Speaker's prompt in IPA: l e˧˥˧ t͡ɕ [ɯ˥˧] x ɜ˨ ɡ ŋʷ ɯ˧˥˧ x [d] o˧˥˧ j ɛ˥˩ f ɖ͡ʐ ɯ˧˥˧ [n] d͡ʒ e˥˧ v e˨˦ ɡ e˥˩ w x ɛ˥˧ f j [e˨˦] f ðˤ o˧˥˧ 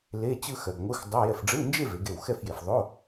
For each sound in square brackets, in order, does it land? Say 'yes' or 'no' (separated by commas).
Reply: yes, no, yes, no